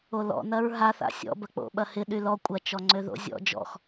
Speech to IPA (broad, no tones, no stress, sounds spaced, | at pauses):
o l ɔ̰ n ɐ ɹ ɦ a θ a̰ sʲ ɔ̰ b ɐ k͡p o̰ ɓ ɐ h ɪ ɗ y l ɔ kʷʼ ɐ t͡ʃ ɔ ŋ͡ǀ ø ð o̰ zʲ ɔ̰ d͡ʒ ɔ̰ x